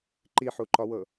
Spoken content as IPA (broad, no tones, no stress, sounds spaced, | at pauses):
ǃ i ħ u ǃ ɒ w ɤ